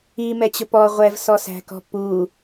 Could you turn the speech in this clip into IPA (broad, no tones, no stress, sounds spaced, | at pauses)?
i m ɛ t͡ɕ ʊ p ɔ ʁʷ ɛ v s ɔ s æ̤ k ɔ̤ p u